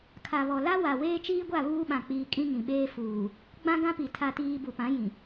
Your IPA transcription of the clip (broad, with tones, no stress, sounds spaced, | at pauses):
kʰ a˨ β ɔ˨ l a˦ w a˨ w eː˦ t͡ʃ iː˦ ɡʷ a˦˨ β uː˦ ɓ ã˨ k͡p iː˨ kʼ ĩ˦ ŋ ĩ˨ ɓ eː˦ f uː˨ | ɡ͡b ã˦ ɡ ã˦ p i˨ tʰ a˦ t iː˦ b u˨ p ã˨˦ j ĩ˨